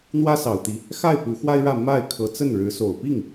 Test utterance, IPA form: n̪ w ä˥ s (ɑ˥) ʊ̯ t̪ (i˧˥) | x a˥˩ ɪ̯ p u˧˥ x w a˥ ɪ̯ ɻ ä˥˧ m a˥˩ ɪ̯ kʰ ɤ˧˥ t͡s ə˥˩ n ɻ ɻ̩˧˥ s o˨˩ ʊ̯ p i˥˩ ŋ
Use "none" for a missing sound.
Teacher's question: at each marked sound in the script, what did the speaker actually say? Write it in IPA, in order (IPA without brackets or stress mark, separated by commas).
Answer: ɑ˨˩, i˧˥